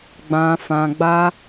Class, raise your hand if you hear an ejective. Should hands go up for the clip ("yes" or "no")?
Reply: no